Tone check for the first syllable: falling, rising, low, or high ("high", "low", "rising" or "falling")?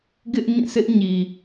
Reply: high